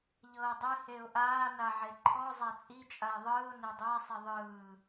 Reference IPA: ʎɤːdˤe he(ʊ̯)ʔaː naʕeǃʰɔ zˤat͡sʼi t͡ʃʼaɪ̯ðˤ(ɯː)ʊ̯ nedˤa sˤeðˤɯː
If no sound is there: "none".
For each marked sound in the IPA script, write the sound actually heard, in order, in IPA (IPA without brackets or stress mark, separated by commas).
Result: ʊ̯, ɯː